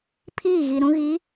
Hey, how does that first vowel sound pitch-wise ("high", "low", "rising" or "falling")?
falling